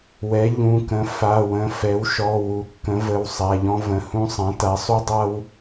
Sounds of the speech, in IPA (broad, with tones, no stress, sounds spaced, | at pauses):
w ɛ˩˥ ʎ ũ˩˧˩ k ə̃˩˥ f a˩˧˩ w ə̃˩˧˩ f ɛ˩˥ w ʃ ɔ˩˧˩ w u˩˥ kː ə̃˩˥ v ə˩˧˩ w sˤ a˩˧˩ ʎ ɔ̃˦ v ə̃˩˧˩ h ũ˦ sˤ ã˩˥ t a˩˥ sˤ u˦ dˤ a˦ w